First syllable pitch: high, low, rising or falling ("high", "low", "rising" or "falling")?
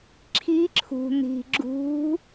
rising